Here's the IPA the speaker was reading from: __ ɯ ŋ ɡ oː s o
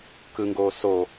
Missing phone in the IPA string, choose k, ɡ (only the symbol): k